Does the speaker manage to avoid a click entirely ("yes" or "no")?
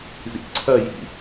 no